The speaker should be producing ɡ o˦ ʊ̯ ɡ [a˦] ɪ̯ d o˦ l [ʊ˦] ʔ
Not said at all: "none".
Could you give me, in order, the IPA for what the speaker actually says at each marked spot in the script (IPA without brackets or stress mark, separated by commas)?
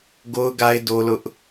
a˦, ʊ˦